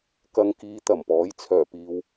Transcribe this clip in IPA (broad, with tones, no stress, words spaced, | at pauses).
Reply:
kɐ˨˧ŋkiː˨˧ t̪ɐ˨˩mpɔː˨˥j t͡sʰœː˨˩ piː˨w